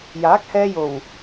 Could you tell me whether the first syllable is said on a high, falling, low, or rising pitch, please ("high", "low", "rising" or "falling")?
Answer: rising